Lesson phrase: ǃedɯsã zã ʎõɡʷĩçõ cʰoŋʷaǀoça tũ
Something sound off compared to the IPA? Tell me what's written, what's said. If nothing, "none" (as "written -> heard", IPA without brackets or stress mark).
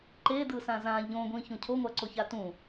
none